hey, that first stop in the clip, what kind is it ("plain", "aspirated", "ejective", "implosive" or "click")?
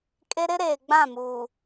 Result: ejective